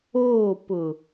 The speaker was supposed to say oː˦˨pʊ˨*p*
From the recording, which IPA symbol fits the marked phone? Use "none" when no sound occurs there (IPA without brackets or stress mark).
none